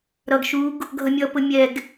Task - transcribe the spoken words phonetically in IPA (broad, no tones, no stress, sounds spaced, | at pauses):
ɾ ʌ ɡ ʃ u ɡ | ɡʱ ʌ mʲ ʌ p ʊ mʲ ɛ ɡ